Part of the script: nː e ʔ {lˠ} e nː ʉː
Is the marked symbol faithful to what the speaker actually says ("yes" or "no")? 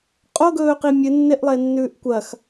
yes